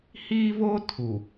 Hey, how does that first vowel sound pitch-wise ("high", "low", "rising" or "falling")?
high